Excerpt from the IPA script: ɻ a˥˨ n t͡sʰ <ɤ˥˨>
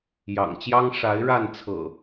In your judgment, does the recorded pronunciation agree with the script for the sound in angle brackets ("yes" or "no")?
no